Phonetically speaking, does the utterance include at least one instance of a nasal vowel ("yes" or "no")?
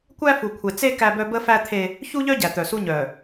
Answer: no